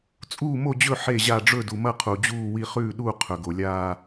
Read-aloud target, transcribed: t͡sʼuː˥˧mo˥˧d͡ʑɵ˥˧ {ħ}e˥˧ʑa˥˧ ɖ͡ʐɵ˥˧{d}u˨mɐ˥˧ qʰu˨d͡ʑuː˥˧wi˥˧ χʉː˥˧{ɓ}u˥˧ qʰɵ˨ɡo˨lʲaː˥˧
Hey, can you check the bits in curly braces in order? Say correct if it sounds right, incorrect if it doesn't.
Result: correct, correct, incorrect: ɗ

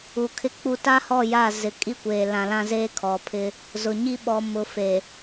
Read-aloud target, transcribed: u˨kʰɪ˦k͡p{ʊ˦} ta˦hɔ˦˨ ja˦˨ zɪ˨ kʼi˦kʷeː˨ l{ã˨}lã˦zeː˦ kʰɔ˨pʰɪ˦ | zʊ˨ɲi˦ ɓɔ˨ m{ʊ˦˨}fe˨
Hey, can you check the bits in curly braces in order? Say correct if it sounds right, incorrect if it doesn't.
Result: incorrect: u˦, correct, incorrect: ʊ˨

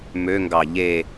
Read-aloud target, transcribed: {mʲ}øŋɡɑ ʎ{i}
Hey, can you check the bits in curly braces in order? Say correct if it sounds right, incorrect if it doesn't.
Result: incorrect: m, incorrect: e

